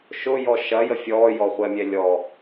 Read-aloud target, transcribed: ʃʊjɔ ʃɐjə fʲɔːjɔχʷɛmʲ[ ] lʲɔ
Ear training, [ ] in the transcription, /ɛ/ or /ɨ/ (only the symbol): ɛ